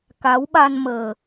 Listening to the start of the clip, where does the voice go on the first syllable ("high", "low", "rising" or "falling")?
rising